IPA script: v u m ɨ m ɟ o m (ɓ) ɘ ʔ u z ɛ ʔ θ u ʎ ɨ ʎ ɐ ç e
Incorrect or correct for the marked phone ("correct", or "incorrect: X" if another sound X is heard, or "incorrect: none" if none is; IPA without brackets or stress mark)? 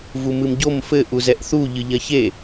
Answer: incorrect: f